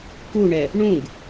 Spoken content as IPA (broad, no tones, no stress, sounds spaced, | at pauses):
k u ɳ ɛ | ɳ ũ ɡ